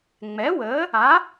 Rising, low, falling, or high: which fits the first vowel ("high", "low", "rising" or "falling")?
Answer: rising